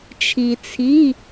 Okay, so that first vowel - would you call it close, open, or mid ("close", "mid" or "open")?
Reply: close